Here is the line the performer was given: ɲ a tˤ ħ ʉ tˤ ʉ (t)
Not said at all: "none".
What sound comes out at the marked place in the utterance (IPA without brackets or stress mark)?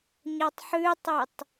tˤ